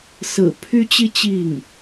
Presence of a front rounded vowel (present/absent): present